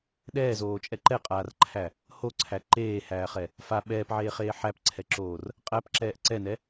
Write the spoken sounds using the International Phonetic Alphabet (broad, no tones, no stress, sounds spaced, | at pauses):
ɗ ɛː z oː t͡ʃʼ ɛ ǃ ɛ qʼ aː r ǃʰ æ | h o ǀʰ æ ǃ eː h æː χ ɛ | f a ɓ ɛː p ʕ eː χ eː ħ æ p ǀʰ ɛ ǁ oː r | qʼ æ p ǁ ɛː ʔ ǀ ɛ n ɛ